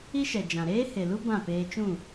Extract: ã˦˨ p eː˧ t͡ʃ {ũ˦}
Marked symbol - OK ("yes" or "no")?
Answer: no